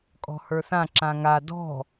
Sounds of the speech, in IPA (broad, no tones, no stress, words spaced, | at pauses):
kʼɔ̤hə˞θã ǁãŋa dɔ̤